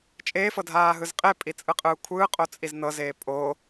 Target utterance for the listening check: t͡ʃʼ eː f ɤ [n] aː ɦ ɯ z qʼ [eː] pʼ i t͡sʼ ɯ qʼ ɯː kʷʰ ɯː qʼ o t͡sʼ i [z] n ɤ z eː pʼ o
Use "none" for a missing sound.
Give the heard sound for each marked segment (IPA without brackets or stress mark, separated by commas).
dʱ, e, z